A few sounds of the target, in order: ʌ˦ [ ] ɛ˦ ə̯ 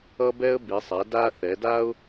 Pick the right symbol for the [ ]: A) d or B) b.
B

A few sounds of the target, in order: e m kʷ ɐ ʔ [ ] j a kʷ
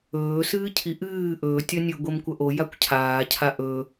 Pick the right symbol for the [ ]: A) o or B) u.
A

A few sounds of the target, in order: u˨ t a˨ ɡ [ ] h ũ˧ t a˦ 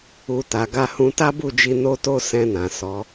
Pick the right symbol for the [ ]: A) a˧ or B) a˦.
A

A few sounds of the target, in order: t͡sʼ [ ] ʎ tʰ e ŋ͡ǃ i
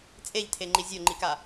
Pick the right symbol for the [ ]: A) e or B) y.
A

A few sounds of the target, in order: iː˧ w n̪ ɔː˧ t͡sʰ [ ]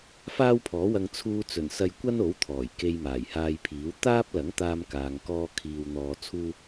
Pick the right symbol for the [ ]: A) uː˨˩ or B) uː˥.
B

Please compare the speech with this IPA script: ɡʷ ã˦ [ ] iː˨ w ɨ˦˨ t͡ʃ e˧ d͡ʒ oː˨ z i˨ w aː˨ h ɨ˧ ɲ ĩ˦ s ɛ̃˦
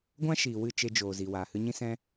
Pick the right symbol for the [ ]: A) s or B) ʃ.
B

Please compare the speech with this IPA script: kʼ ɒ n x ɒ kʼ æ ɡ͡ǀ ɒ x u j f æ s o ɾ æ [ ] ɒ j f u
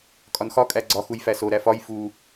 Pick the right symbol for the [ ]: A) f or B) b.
A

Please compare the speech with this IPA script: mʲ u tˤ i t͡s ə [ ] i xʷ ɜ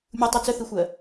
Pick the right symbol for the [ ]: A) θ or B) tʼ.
A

